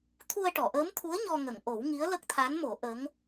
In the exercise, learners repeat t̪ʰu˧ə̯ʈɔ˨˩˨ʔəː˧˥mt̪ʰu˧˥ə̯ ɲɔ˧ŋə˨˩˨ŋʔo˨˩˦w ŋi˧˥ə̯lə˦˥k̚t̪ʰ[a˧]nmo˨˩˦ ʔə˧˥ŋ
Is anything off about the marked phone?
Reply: yes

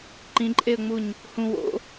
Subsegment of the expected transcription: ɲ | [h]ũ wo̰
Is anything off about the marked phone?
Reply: no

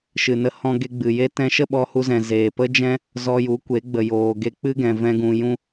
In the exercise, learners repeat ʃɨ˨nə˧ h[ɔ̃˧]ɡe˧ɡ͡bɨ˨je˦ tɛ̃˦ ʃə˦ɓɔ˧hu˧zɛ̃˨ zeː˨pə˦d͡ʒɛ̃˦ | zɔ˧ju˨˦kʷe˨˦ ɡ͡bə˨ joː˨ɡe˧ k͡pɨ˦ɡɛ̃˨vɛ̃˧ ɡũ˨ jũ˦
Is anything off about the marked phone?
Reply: no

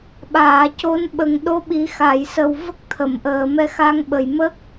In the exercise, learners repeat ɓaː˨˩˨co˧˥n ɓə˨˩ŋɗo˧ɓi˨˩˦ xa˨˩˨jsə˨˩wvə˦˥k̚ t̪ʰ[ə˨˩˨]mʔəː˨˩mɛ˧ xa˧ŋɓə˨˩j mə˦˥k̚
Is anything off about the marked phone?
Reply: no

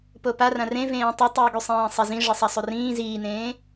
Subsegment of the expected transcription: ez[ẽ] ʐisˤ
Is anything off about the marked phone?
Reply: yes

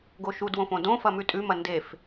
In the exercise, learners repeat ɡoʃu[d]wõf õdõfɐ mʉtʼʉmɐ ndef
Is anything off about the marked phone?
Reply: no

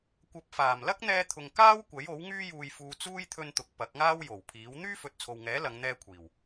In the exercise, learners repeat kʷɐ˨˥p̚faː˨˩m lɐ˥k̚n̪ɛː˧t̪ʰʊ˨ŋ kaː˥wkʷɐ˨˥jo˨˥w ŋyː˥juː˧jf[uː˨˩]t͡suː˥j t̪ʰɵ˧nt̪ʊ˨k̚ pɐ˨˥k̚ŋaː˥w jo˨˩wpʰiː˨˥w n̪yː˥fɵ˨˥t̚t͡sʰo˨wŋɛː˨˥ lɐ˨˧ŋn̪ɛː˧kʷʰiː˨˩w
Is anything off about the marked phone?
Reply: yes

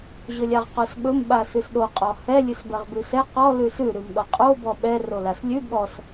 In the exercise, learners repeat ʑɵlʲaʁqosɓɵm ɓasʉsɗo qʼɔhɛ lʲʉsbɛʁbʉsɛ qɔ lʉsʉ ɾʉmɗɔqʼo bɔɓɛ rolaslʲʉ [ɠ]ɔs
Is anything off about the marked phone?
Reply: no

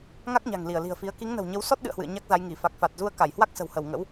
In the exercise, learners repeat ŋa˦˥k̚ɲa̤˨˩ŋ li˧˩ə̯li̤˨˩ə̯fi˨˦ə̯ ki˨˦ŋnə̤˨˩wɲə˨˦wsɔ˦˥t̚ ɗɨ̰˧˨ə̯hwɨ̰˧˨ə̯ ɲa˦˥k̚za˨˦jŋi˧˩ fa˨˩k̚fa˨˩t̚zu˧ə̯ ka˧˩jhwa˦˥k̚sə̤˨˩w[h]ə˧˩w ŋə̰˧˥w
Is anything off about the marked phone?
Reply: no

